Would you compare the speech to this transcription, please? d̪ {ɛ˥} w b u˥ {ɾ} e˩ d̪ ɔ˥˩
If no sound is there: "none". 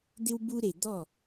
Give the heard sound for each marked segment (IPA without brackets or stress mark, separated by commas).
ɪ˥, ɾ